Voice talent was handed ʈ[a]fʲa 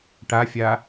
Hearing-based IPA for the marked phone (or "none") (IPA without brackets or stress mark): a